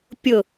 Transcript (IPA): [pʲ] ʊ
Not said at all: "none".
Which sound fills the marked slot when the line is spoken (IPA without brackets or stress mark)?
pʲ